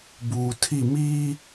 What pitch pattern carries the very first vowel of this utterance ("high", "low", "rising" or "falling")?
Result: low